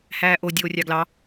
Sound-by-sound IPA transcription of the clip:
h æː ʔ o dʲ oː rʲ ɑ ɡ l ɑ

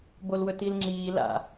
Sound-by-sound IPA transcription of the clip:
b o l w ɵ t i l ŋ͡ǁ iː l a̰

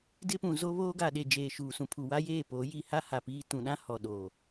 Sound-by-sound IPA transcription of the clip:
d ɪ˦ p ũ˨ z o˦ β oː˦ ɡ a˨ ɗ e˨ d͡ʒ eː˨ ʃ uː˨ s ũ˨ pʰ u˨ w a˦ j eː˦˨ p o˨˦ j i˨ h a˦ h a˨ p iː˦ t ũ˨ ɗ ã˦ h ɔ˨ ɗ oː˨

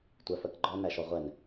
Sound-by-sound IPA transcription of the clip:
tʷ æ f ɜ k ɡ͡ǃ ɔ n æ ʃ ɔ ʁʷ ɛ n

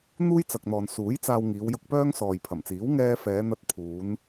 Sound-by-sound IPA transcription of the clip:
n̪ uː˥ j t͡s ɐ˨ k̚ n̪ ɔː˨ n s uː˨˥ j t͡s aː˧ w ŋ iː˨˧ w j ʊ˧ k̚ p œː˥ ŋ s ɔː˨ j pʰ ɐ˨˩ m t͡s iː˨˥ w ŋ ɛː˥ f ɛː˨˧ n̪ ɐ˧ t̚ pʰ uː˨˧ n

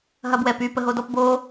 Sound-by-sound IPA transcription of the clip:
ɦ ɐ b w ɛ p y p ə ɦ o d ɔ p b o

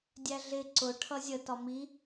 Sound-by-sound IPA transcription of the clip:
dʲ æ ɮ ɪ ǀ ʊ ʈʰ ʌ zʲ ə t ɒ m i

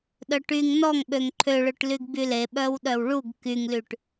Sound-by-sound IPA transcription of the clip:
ɗ œ ʈ y ŋ n ɔ ŋ ɓ ø ŋ ǃʰ ø ɭ ø ʈ l y ɡ b y l e ɓ œ w ɗ œ w ɭ u ɡ k y ŋ l y ʈ

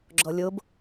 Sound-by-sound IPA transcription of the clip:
ɡ͡ǁ ɔ lʲ o b

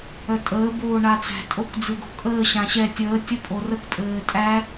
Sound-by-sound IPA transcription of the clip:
œ tʼ əː b oː ɳ a t͡s æ̤ tʼ o k d͡z ɨ ɡ o̤ kʼ əː ɕ ã ɕ ɛ tʲ əː tʲ ə pʼ o r ə k pʼ ɘː tʼ æ

